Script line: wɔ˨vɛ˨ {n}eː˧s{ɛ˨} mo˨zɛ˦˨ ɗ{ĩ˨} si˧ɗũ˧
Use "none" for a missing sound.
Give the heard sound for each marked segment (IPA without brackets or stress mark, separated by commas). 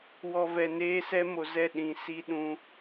n, ɛ˧, ĩ˨